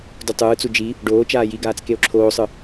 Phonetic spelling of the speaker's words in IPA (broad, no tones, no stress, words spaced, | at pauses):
dutˤɯːt͡su d͡ʒi | ɖoː t͡ʃaːjiɡaːt͡s keo̯ǁʰoːsˤɯ